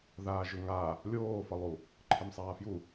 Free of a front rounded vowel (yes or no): yes